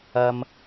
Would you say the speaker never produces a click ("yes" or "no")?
yes